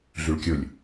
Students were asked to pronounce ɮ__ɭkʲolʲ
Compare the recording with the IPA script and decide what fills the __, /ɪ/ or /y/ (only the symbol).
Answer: y